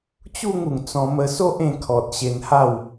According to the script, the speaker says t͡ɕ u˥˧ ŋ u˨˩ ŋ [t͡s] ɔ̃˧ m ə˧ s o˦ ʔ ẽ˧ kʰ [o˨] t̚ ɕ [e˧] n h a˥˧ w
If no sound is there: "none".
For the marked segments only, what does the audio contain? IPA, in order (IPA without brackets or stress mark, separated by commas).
t͡s, ɔ˨, e˧